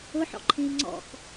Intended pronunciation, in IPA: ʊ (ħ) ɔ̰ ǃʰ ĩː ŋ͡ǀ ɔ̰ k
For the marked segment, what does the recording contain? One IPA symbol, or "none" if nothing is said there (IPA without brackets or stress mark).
ħ